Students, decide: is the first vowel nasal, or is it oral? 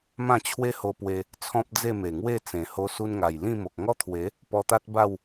nasal